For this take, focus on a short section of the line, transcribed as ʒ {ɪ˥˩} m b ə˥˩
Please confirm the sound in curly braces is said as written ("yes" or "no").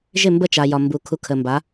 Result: yes